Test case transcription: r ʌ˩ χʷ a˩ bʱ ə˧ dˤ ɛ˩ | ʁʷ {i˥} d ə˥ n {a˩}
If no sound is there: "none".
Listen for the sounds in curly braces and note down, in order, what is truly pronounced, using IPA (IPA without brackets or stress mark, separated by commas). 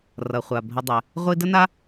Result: i˥, a˥